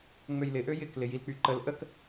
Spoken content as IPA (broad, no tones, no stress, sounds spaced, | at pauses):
ŋ͡m ø j l ɪ ʔ ø j ɪ k l ɪ j i l k͡p y ǃ ə l ʔ ə k